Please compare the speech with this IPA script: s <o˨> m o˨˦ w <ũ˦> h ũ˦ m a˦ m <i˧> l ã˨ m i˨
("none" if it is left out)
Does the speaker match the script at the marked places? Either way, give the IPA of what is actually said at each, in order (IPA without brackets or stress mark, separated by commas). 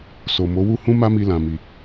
o˨, u˦, i˧